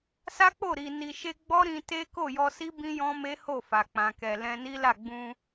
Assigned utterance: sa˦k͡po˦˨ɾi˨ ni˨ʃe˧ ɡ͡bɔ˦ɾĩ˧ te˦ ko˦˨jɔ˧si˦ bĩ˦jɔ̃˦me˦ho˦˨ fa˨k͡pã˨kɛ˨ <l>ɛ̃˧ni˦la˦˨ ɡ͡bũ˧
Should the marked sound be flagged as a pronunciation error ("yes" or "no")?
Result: no